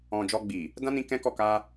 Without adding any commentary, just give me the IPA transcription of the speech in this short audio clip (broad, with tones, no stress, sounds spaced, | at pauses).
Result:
ɔ̃˨ d͡ʒ ɔ˧ ɡ͡b i˨ | d ã˦ n ĩ˧ k ɛ̃˦ k ɔ˦˨ k a˧